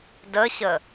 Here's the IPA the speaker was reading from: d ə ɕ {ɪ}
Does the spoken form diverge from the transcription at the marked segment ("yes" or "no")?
yes